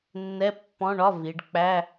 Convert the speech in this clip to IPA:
nː ɛ˧˥˧ pː ɔ̃˧˥˧ ɳ ɒ˧˥˧ v i˩˧ ɖ k͡p æ˧˥˧

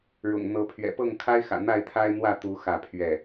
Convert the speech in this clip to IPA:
ɻ ʊ̰˨˩ ŋ n̪ ɤ˨˦ pʰ ɥ ɛ̰˨˩ p ɤ˥˨ ŋ kʰ a˦ ɪ̯ x ä̰˨˩ n̪ a˥˨ ɪ̯ t̪ʰ a˦ ɪ̯ n̪ w ä˥˨ t̪ u˨˦ x ä˥˨ pʰ ɥ ɛ˥˨

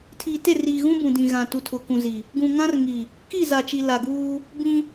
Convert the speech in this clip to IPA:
tʰ iː˨ t e˦˨ r iː˨ ɣ ũ˦ b ũ˨ d ĩ˨ ɣ ã˨ t u˨ tʰ ʊ˨ k ũ˨ z i˨ | ɡ ũ˨ ŋ ã˦ r ŋ i˨ | k i˦˨ z a˨ t͡ʃ i˨ l a˨ ɡ uː˦ | b ĩ˦

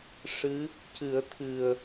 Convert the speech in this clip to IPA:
ʂ ɨ˧˥ | c ɨ˨˩˦ ə̯ t̪ʰ ɨ˨˩ ə̯

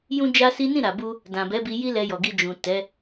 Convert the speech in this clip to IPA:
j ũ˦ d͡ʒ a˦ s i˦ n ĩ˦˨ ɾ a˨ b u˧ | d ã˨ b ɛ˨˦ b i˧ j i˦ l ɛ˧ j ɔ˨ ɡ i˧ d͡ʒ ũ˨ t ɛ˨˦

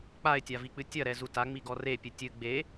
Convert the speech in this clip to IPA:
k͡p a ɪ̯ tʲ a v i k͡p ɨ tʲ ɐ ɾ ɛ z u t a ŋ͡m i ɡ ɔ r e pʲ ɨ tʲ ɨ ɡ͡b e

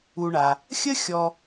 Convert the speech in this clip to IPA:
u˨ ɳ a˩ | xʲ ə˦ xʲ ɔ˨

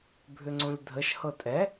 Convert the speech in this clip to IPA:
bʱ ʏ ŋ͡ǀ õ ʎ dʱ ə ʃ h ɤ tʼ ɛ

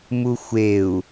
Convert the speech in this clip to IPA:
m u xʷ e u̯

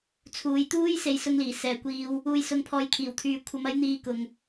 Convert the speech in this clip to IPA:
t͡sʰ uː˨˧ j t̪ uː˥ j s e˧ j s ʊ˧ ŋ l iː˨˩ s ɛː˨ kʷ iː˧ w | uː˨ j s ʊ˨ ŋ pʰ ɔː˨ j kʰ iː˨˩ w t̪ʰ yː˨ kʷʰ ɐ˨˧ m ɐ˨˥ j n̪ iː˧ k ʊ˨ ŋ

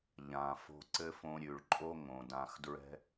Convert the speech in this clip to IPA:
ʎ ã˨ f o̤˧ ǀ ɘ˦ f õ˧ ɾʲ ʉ˨ ɭ ǃʼ o˦ ŋ õ˨ d ã˧ x d ɹ ɛ̤˦

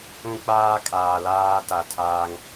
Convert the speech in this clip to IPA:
ũ˦ k͡p aː˦ kʼ aː˨ l aː˦ t a˨ tʰ aː˦ ŋ

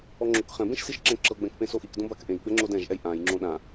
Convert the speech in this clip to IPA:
ɔ ŋ͡ǁ o k χ ɛ̃ b ẽ ʃ s i ʃ ǁ ɛ̃ ǁ ɤ ɡ͡b ɛ̃ k p ẽ s o ʔ i k d õ b a k ʔ ẽ j ɡ͡b ɛ ŋ͡ǁ o d ɛ̃ ʒ ʔ ɛ j ʔ ã j ŋ͡ǁ õ ɗ ã

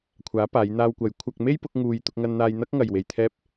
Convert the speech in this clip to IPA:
kʷʰ aː˨˥ p aː˨˧ j n̪ aː˧ w kʷ ɐ˨˥ j kʷʰ ɐ˧ k̚ m e˥ j p ʊ˨˥ k̚ ŋ uː˧ j t̪ ʊ˧ k̚ ŋ ɐ˧ n n̪ aː˧ j n̪ ɐ˥ k̚ ŋ ɐ˨ j w e˨ j t̪ʰ ɛː˧ p̚

